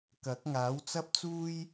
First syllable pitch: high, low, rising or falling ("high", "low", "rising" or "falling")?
rising